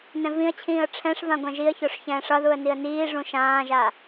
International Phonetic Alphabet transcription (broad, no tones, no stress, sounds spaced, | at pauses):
n ɛ̃ v ĩ ə̯ t͡ɕʰ ĩː ə̯ ʈ͡ʂʰ ɛ̃ ʂ v ã ɡʷ ɛ̃ ʒ i ə̯ ç o ʂ ç ɛ̃ː ʂ ʌ ð u ə̯ n i ə̯ n iː ʐ ũ ʃ ãː ʒ a